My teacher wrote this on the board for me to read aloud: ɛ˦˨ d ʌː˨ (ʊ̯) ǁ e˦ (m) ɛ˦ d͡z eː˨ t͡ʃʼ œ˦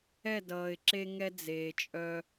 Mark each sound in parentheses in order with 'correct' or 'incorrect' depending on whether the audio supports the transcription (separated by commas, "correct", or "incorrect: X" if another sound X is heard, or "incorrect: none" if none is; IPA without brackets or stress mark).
incorrect: ɪ̯, incorrect: ŋ